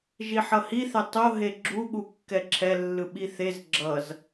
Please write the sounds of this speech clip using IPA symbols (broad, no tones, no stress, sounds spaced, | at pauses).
ʒ i ħ ʌ h i θ ɛ tˤ o ɦ e ɡ͡ǁ u ɠ u kː ɛ ǁʰ ɛ lː ɯ ɓ i θ e z ɡ͡ǁ ʌ z